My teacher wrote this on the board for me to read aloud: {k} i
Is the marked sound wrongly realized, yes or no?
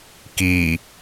no